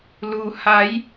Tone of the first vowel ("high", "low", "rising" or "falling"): low